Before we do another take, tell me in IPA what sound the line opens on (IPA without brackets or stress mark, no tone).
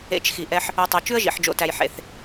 ḛ